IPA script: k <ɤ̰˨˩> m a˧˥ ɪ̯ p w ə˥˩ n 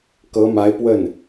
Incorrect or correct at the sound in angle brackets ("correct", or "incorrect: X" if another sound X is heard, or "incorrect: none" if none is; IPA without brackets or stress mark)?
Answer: incorrect: ɤ˧˥